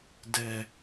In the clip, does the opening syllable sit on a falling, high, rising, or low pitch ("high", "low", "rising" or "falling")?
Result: low